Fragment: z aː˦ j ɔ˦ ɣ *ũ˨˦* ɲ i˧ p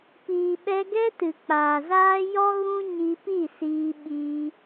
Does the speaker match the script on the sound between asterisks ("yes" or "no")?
no